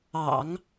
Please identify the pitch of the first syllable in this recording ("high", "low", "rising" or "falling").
low